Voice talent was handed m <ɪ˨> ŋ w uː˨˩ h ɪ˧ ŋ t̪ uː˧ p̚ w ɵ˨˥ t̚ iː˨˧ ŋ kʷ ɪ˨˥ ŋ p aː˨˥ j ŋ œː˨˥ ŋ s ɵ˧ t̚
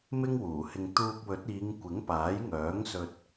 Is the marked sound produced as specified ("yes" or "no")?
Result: no